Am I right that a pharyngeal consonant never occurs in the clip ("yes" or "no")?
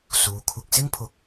yes